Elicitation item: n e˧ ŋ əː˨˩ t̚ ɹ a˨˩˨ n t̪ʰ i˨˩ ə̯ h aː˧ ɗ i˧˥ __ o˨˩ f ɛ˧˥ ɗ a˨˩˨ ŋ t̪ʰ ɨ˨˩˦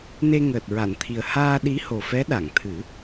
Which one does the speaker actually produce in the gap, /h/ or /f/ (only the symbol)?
h